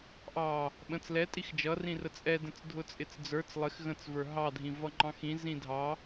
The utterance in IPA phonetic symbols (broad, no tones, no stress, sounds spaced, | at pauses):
ʔ ɑ | ɓ ə̃ t͡s l ɛ tʼ i x d͡ʒ ʌ r ĩ r ə t͡sʼ ɛ d ə̃ t͡s dʱ ʊ t͡sʼ ɪ t͡s d͡z ə˞ t͡s lˠ ɪ x ɣ ə̃ t͡s v ə˞ ɦ ɑ dʱ ĩ v ʌ ŋ͡ǃ ɑ̃ x ĩ z ĩ dʱ ɑ